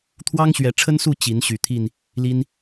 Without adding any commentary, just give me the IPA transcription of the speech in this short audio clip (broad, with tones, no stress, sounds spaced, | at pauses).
t̪ʰ w ɑ˦ ŋ ɕ ɥ ɛ˨˦ ʈ͡ʂʰ ə˦ n s u˥˨ t͡ɕ i˨˦ n ɕ y˨˩ t̪ʰ i˥˨ n | l i˦ n